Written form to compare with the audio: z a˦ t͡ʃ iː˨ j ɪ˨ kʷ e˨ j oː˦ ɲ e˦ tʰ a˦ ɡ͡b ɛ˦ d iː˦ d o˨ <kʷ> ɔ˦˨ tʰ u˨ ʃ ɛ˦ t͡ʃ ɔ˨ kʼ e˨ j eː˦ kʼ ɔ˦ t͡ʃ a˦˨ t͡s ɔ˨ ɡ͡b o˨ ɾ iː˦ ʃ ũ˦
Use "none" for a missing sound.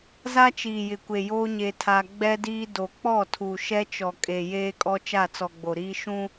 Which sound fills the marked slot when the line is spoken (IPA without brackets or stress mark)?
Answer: k͡p